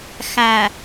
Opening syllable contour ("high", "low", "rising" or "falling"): low